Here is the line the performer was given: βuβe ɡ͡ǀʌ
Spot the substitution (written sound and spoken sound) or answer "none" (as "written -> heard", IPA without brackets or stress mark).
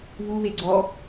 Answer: ʌ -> ɔ